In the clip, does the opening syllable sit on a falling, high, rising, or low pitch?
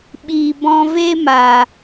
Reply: low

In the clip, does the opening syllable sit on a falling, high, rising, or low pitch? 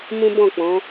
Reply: high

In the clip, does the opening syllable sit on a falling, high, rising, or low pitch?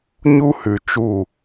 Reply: high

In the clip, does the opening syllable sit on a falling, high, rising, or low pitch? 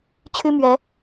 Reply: high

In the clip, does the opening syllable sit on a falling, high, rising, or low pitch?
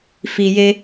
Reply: low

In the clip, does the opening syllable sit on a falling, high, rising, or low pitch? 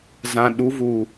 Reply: low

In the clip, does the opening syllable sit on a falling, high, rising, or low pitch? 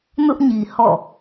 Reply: high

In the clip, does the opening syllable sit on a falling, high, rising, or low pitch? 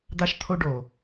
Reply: high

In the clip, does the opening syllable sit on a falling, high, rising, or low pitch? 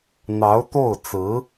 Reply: rising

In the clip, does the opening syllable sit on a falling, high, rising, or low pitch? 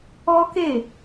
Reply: high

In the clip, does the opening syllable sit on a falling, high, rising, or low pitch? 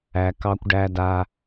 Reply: low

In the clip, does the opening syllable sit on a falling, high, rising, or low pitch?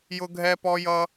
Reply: high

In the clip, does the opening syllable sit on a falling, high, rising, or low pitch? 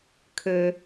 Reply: low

